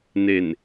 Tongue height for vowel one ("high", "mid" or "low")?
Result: mid